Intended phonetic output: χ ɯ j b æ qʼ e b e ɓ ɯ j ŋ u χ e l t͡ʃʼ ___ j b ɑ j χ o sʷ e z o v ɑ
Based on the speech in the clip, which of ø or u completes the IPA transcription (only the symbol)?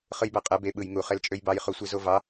ø